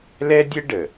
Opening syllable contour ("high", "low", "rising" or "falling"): high